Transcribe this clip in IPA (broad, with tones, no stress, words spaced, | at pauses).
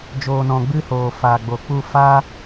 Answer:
d͡ʒoː˨nɔ̃˨ ɡ͡bɨ˦hoː˨ faː˨ɡ͡bo˨k͡pu˦˨ fa˦